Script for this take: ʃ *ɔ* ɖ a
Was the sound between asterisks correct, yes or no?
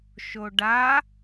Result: no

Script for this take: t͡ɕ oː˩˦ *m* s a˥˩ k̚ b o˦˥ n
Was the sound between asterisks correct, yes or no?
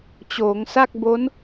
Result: no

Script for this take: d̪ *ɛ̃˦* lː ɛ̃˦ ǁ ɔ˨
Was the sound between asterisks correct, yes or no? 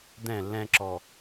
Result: no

